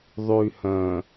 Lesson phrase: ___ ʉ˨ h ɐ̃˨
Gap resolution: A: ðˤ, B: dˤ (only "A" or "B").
A